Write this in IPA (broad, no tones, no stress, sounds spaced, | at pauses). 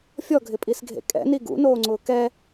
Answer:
fʲ ɔ ɡʱ ɪ pʼ i s ɡʱ ḛ kʼ ɛ̰ n i ɡ ṵ n oː ŋ͡ǀ ʊː k ɛ